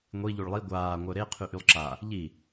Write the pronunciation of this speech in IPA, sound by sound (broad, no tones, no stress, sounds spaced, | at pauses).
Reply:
ŋʷ i ʎ u ɭ lˠ i ɡʷ aː ŋʷ œ ɾ e qʰ y ʔ y lˠ ǁ a | ʎ i